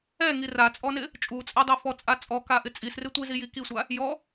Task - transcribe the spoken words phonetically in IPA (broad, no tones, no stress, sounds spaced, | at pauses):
ɛ ŋ i r a t͡sʼ ɔ n ɪ | t͡ʃʼ u t͡sʼ ɛ dˤ ɛ f ɔ t͡sʼ a t͡sʼ ɔ k a ʔ ɪ t͡sʼ i s r ɪ tʷ i z i j i k i sʷ a | j ɔ